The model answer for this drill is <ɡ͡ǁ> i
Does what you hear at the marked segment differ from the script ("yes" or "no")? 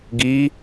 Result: yes